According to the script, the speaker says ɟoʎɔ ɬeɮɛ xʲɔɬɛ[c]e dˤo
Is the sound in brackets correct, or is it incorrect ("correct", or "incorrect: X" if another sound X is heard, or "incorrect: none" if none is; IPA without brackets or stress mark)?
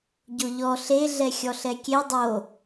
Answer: incorrect: kʲ